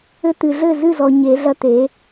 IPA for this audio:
ɘ˧ t̪ ɨ˨ ɮ ɘ˦˨ z ɨ˦˨ z ɔ˨ ɲ e˨˦ ɮ ɐ˦ t̪ e˨˦

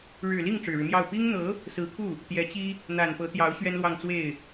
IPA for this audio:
ɻ ɻ̩˨˩ l i˥˩ ŋ ʈ͡ʂ ɻ̩˨˩ ɻ ɻ̩˦ m j ɑ˥˩ ʊ̯ p i˥ ŋ n̪ ɤ˧˥ | s ɹ̩˧˥ kʰ u˥˩ | t̪ j ɛ˧˥ t͡ɕ i˥ | n̪ a˨˩ n p ɤ˧˥ t̪ j ɑ˧˥ ʊ̯ ɕ ɥ ɛ˥ n l w ɑ˥˧ ŋ t͡s w e˥˩ ɪ̯

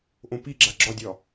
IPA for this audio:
ʔ õ p i ɡ͡ǁ a ɡ͡ǁ ɒ dʲ ɒ

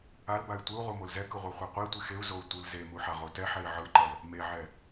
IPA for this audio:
a l b a y̯ tʷ ɯ u̯ ʁ u m o l z ɛ k ɯ ʁʷ i χʷ e qʷ i tʷ i x e u̯ z o u̯ tʷ ɯ l z e m u ħ a ʁ o t ɛ ħ ɛ i̯ ʕ ɯ ǃ ʌ l | m e ʕ ɛ

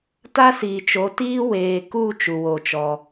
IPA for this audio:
t a˦ s iː˨ t͡ʃ o˨˦ t iː˦ w eː˨ k u˦˨ t͡ʃ u˧ w o˦˨ t͡ʃ ɔ˧

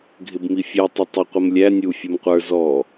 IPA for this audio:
ɡʱ ɪ b m i fʲ ɛ tˤ ʊ tˤ ɪ qʷ ə m lʲ æ nʲ u fʲ u m qʷ ə˞ z ɔ

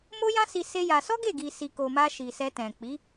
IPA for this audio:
m o˦ j ã˦ s i˧ s e˦ j a˧ s ɔ˦ ɡ e˦˨ ɡ i˨ s i˨ k o˨ m a˧ ʃ i˨ s ɛ˧ t ɛ̃˨ k͡p i˨˦

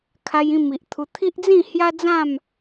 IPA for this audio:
kʰ a˧ j ĩ˥˧ m i˨ ʔ t̪ʰ u˧ t̪ʰ i˦ ʔ d͡z ĩ˥˧ h j a˦ d͡z ã˥˧ m

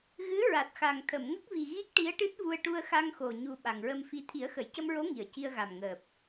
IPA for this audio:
ɣ ɨ˧˥ ɹ a˨˩ t̚ x a˨˩ ŋ t̪ʰ ə˨˩˨ m ŋ ə˦˥ k̚ v i˨˩ ɣ i˦˥ k̚ ʈ i˧˥ ə̯ ʈ ɨ˦˥ t̚ v u˧ ə̯ ʈ u˧ ə̯ x a˧ ŋ x o˨˩ ɲ u˨˩ ɓ a˨˩ ŋ ɹ ə˧ m f i˧ t̪ʰ i˨˩˦ ə̯ x ə˨˩˨ j c ə˧ m ɹ o˧˥ ŋ i˨˩ ə̯ c i˧ ə̯ ɣ a˨˩ m ŋ əː˨˩ p̚

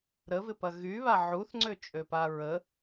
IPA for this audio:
ɾ ə v ɪ p ɐ ɣ y β a ʕ u θ ŋ͡ǀ ø t͡ʃʼ ø p a ɹ ə

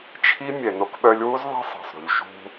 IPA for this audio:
t͡ʃʰ i˦ mʲ ɛ˨ n o˦ k ɓ œ˦ lʲ w u˦ z ðˤ ɛ̤˦ sˤ ɑ̤˨ sˤ ɾ ṳ˨ ʎ ʃ ṳ˦

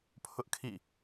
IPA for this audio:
pʰ ʊ˦ ʔ kʰ ḭ˦˨

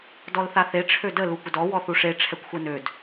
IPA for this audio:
d ɔ l θ a θ e ʈ͡ʂʰ ø d ə l u kʷ ə d ɔ w ɔ θ u ʂ e ʈ͡ʂʰ ɛ kʷ xʷ ɛ n ø d

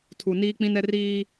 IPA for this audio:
tʰ u˨ n iː˦ k͡p ĩ˦ n ɛ˦ r iː˦

